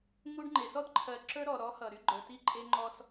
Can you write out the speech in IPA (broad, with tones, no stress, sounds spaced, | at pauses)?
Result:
ŋ u˦ ɖ ŋ͡ǃ e˨ s ɔ˦ d ǃʰ ɜ˨ ǁ ə˞˦ ɾ ɔ˨ ɾ ɔ˨˦ h ʌ˨ ɾ y˦ ɡ͡ǃ ə˞˨ t i˦˨ ǃʼ e˦ ŋ͡ǃ ɔ˦ s